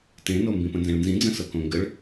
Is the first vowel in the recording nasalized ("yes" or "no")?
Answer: yes